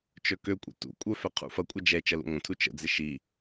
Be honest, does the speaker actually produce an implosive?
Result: no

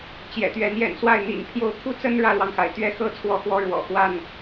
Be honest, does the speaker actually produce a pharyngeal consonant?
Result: no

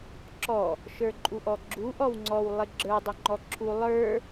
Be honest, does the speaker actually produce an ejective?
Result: yes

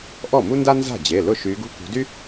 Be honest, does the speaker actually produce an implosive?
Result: no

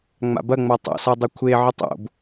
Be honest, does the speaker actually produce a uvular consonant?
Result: no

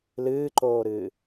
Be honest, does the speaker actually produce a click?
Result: yes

